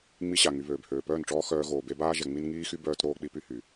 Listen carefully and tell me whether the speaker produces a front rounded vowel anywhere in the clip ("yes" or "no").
yes